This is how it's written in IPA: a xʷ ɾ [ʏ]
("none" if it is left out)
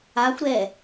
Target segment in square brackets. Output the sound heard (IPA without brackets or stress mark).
ɛ